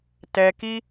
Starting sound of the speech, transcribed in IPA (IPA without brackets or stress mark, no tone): t